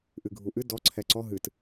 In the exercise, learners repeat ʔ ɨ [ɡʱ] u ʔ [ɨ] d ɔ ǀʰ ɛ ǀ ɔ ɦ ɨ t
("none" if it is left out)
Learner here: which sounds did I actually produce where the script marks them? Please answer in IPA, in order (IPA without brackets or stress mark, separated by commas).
ɡʱ, ɨ